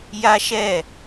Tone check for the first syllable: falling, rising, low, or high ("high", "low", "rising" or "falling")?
high